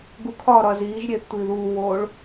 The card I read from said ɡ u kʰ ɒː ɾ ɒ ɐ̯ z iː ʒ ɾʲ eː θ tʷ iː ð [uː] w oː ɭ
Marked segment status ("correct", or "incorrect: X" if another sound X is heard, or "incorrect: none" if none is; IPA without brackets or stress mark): correct